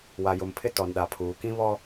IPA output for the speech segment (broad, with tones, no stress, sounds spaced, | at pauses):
w a˨ j ʊ˨ m pʰ ɪ˦ t ɔ˨ n ɗ a˨ pʰ uː˨ k ĩ˦ β ɔ˦